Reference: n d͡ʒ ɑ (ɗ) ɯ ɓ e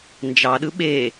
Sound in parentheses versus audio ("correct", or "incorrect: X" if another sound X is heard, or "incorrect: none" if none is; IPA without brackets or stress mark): correct